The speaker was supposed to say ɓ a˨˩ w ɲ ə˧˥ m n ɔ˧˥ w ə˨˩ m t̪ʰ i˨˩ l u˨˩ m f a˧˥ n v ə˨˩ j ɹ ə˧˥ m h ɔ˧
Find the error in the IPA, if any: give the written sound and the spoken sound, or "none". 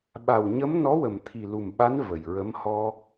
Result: f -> ɓ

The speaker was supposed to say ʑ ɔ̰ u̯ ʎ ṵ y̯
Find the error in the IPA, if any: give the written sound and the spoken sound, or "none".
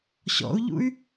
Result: ʑ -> ɕ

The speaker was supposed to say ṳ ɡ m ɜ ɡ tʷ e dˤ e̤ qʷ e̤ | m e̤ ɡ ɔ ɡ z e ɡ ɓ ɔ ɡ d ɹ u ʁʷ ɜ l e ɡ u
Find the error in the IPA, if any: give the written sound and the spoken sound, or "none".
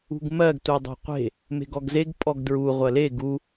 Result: ɓ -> pʼ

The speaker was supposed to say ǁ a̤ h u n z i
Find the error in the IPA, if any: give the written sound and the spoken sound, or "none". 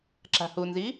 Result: none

